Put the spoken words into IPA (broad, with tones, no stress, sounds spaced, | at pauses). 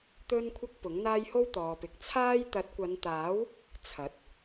t̪ ɵ˥ n kʷʰ ɐ˥ k̚ p ʊ˨˥ ŋ n̪ aː˥ j h o˥ w t̪ ɔː˨ p ɪ˨˥ k̚ t͡sʰ aː˥ j t̪ ɐ˨˥ t̚ kʷ ɐ˨˧ n t̪ aː˨˥ w | t͡sʰ ɐ˨˥ t̚